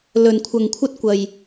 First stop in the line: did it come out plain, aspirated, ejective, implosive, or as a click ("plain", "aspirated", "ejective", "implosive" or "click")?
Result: aspirated